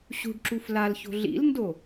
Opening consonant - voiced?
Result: no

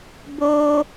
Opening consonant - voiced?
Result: yes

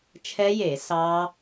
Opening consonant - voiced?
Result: no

